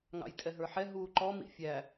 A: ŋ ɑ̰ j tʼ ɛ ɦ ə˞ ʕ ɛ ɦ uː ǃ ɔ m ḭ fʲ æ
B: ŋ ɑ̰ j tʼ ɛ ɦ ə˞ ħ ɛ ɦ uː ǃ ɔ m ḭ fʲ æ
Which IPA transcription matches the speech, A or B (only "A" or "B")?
B